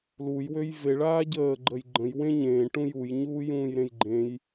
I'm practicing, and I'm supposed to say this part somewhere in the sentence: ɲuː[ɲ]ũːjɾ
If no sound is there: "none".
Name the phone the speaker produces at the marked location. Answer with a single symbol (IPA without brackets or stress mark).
j